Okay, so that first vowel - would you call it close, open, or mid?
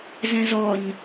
mid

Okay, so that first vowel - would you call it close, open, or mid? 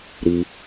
close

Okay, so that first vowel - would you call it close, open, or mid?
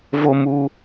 mid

